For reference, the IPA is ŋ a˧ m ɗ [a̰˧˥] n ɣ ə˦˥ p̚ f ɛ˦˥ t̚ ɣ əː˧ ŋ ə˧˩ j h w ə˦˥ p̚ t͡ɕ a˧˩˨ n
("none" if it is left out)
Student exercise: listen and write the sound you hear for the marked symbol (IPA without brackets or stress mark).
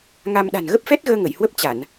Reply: a̤˨˩